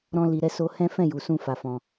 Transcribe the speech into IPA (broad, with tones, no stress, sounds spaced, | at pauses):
ɾ ɔ̃˦ l i˧ ɾ ɛ˦ s o˦ h ɛ̃˦ f ɛ̃˦˨ j u˨ s ũ˧ f a˧ f ɔ̃˧